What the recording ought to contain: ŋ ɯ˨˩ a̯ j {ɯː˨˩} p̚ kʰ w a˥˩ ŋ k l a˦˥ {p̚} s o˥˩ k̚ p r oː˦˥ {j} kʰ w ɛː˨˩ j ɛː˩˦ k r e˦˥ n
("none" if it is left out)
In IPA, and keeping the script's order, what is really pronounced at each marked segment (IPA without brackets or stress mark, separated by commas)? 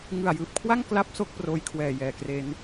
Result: ɯː˨˩, p̚, j